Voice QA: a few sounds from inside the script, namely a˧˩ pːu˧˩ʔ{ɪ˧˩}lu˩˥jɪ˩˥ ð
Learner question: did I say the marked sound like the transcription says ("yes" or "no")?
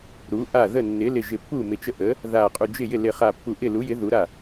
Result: no